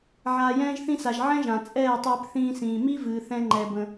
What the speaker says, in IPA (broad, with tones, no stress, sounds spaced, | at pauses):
ʕ aː˨ j ɛ̃ː˧ ʒ θ ĩ˧ s a˨ ʒ ʕ ɛ̃˦ ʒ ã˨ t͡sʼ ɛː˦˨ tˤ ɨː˧ p θ ĩː˧ s ĩː˨ m i˦ v ɨː˧ θ ɛ̃˦ ŋ͡ǃ ɛ˧ b ə̃˧